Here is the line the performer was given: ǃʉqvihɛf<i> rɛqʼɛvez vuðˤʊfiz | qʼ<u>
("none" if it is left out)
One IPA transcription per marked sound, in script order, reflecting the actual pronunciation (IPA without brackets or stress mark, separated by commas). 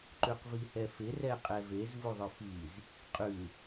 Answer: ɪ, ʉ